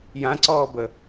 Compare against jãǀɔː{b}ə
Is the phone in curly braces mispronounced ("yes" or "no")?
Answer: no